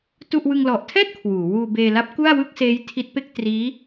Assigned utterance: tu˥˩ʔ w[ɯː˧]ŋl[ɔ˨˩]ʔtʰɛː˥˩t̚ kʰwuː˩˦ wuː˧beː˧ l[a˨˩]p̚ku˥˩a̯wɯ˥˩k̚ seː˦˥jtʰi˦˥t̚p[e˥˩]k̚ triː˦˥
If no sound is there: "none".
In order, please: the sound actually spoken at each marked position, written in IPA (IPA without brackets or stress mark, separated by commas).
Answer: ɯ˧, ɔ˨˩, a˦˥, e˥˩